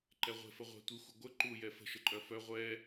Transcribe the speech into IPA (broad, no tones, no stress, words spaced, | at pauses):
ǃɛʁʷe̤fə ʁʷɛ̤ tʷixʷə ɡʷə ǃu jɛfə̤ʃəǃʼœ fœ ʁʷɛ